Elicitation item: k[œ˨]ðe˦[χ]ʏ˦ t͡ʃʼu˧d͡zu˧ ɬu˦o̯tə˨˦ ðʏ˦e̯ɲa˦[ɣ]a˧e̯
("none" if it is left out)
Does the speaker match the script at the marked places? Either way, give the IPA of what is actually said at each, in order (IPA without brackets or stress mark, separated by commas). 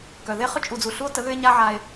œ˨, χ, ʕ